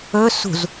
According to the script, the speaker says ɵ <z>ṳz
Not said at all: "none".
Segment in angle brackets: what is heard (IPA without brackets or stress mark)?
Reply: s